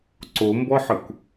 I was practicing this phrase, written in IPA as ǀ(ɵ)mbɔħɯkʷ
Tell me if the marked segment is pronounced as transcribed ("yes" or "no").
no